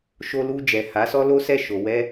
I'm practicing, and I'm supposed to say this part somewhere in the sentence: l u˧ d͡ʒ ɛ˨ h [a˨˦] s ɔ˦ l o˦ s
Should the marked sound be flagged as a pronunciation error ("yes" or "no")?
no